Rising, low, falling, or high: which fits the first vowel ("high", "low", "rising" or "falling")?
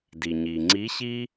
low